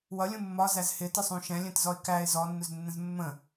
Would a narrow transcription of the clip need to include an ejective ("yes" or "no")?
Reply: no